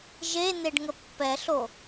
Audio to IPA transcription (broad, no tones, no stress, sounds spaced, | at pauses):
ʒ e n̪ e ɖ ŋ ə pː ɛ ɬ o